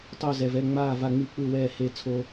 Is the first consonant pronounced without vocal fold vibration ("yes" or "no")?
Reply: yes